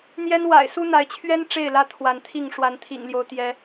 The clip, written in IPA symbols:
n̪ j ɛ˦ n w a̰˨˩ ɪ̯ s u˦ n̪ a˨˦ ɪ̯ t͡ɕʰ ɥ ɛ˦ n ʈ͡ʂ e˥˨ ɪ̯ l ä˦ t̪ʰ w a˨˦ n t̪ʰ i˥˨ ŋ ʂ w a˨˦ n t̪ʰ ḭ˨˩ ŋ l j o˦ ʊ̯ t̪ j ɛ˨˦

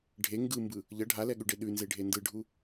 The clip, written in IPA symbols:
ɖʱ e ŋ ɡ ɯ m b ɯ | ʎ ʌ ɖʱ a l ɛ ɠ ʉ ɖ e ɗ ʉ n z e ɖʱ e n d ɯ ɖʱ u

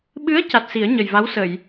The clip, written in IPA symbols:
ɓ ɨ˧˥ ə̯ c a˨˩ t̚ s i˨˩˦ ə̯ ɲ ə˨˩ j v a˧˥ w s ə˨˩˨ j

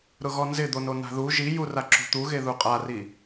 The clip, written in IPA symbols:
ɾ ʊ ɣ ɔ n z ɪ d̪ o n o n a̤ ð u ʒ i j u r a ǁ ṳ t̪ u ɣ e ð u qʼ a r i

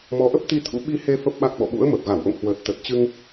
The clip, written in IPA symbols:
m ɔ˨˦ ʔ ə˦˥ p̚ t̪ i˧ t̪ʰ ṵ˧˥ ɓ i˧ h e˧ f ə˦˥ p̚ ɓ a˦˥ k̚ ɓ ɔ̰˧˨ ɓ ṵ˧˥ ə̯ m ə˨˩ p̚ ɣ a˧˩ w ʔ o̰˧˨ ŋ h w əː˨˩ t̚ t̪ ə˨˩ t̚ t͡ɕ ɨ˧ ŋ

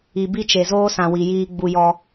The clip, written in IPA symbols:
i˨ b i˦ t͡ʃ e˨ z oː˦ s ã˨ w i˨ j iː˦ ɡ͡b u˦ j ɔ˦

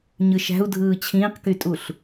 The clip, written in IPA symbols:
ɲ ɯ ʃ æ̤ u̯ dʱ ɯː t͡ɕʰ ĩː q k y tʼ u ɬ

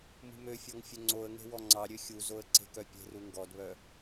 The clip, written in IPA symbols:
m ṳ m ø fʲ ɔ ŋ fʲ ɵ ŋ͡ǀ o ə̯ ŋ e̤ w ɔ ŋ͡ǀ ɑ ɾʲ ø xʲ u z o ə̯ ǀ e̤ k œ pʲ e̤ r u ŋ ɡ ɔ d β œ

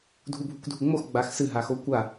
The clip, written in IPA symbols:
dʱ u bʱ u kʷ dʱ u ŋ͡m o x ɡ͡b a x s ɨ ɦ a x o kʷ a

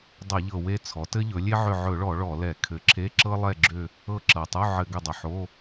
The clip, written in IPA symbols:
dˤ ɘ˧˩˧ ʎ ɤ˨˩ w e˦˨ t͡sʰ ɔ˩˥ t ɘ˥ ʎ ɵ˩˥ lʲ e˥ ʕ ʏ˦˨ ʕ ɵ˧˩˧ ɭ ɔ˧˩˧ ɭ ɔ˧˩˧ l ɛ˧˩˧ kʰ ɘ˨˩ ǁʰ e˧˥˧ ǁ ɤ˥ lˠ ɛ˦˨ ɡ͡ǁ ʏ˦˨ | ɤ˦˨ ǁ ɤ˨˩ tˤ u˧˥˧ ʕ ɘ˧˩˧ ɡ ʏ˦˨ dˤ ʏ˨˩ ħ o˧˥˧

